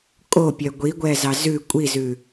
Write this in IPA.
kʼopʲœ ɡʷiɡʷɛ zɑzʉ kʷʼizʉ

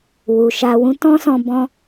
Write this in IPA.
wu˨ʃa˧wũ˦ tɔ̃˦sɔ̃˧ bɔ̃˦

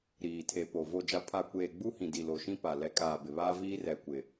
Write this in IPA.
ɾiː˨tʰe˨po˨ vo˨d͡ʒa˨pʰa˨kʷeː˨ ɡ͡bu˦hĩ˨ di˨lo˨ʃĩ˦ pa˨lɛ˨˦kʼaː˨ bɪ˨βaː˦viː˦ rɛ˨kʷɪ˨

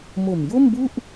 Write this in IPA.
mo˨˩mjo˥˩mbu˥˩ʔ

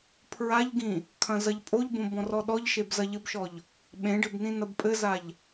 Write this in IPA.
pʰɹaʎɡĩ | kʰɐ̃zɐʎpʼoʎbõ bɔ̃rɔɗɔʎʃeb zɐʎɘbʃɔʎ | ɓẽɖɘb nĩnɐbpʼɘzaʎ

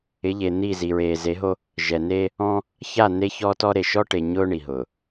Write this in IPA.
ɪ˨˦ʎe˨n̪i˦˨ zi˨ɹeː˨ze˨˦ɦo˦ | ʒɛ˨ne˦ | ɔ̃˦ | ça˦˨ ne˦çɔ˦tɔ˦ɾe˨ ʃɔ˦ʈe˨ ɲʊː˦ ɳi˨ɦʊː˨

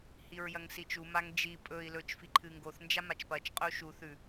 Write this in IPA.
hiɹjɐŋsit͡ʃu maŋd͡ʒi pʼɵi̯ lɵt͡ʃ fiǃʰɨŋɡoθ nd͡ʒamat͡ʃpɐt͡ʃ qʼɵu̯ʃu θʉ

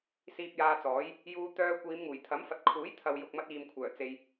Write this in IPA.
siː˧p̚jaː˧t͡sɔː˨˥j | juː˧ t̪œː˧ kʷiː˨˧mŋuː˨˩jt̪ʰɐ˨˥m fɐ˨t̚kʰuː˨˥jt̪ʰɐ˨w jʊ˨k̚mɐ˧t̚iː˨mkʷʰœː˨˩ t͡se˧j

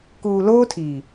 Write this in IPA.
kuː˨loː˦tʰiː˨

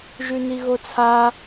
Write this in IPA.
ʒʉniɣot͡sʰa

